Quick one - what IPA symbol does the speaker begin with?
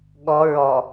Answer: ɠ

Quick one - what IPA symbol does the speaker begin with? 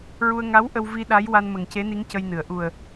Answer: ɹ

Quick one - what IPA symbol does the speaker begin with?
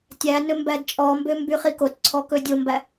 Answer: tʲ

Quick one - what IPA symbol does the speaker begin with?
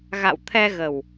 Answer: ɣ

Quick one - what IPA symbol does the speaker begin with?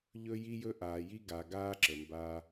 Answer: ʎ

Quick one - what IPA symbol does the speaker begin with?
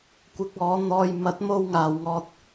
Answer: kʷ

